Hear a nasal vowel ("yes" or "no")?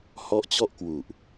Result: no